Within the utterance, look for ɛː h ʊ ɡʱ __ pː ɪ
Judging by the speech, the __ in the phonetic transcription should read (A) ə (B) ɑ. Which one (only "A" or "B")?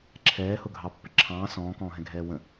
B